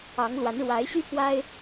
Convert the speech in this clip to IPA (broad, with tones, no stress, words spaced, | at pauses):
ɑ˧˥ŋlwa˧˥n ɻwa˧˥ɪ̯ɕy˥pwa˥ɪ̯